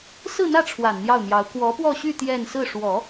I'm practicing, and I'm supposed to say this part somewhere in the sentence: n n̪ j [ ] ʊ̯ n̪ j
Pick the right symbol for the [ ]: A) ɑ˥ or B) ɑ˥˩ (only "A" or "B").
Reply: B